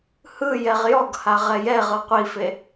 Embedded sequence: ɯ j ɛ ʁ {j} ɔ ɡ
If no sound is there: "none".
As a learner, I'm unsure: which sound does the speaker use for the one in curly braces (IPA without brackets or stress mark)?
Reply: j